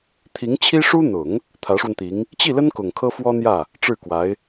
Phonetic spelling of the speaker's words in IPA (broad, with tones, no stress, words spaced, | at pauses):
t̪ʰi˧˥ŋt͡ɕʰi˥ʂu˥ n̪ʊ˨˩˦ŋ | t̪ʰä˧˥ʂwə˧nt̪i˧˥ŋ | t͡ɕi˥˩lə˥n kʊ˨˩ŋkʰɤ˥fwɔ˥n̪jä˥˩ | ʈ͡ʂɻ̩˥˩kwa˧˥ɪ̯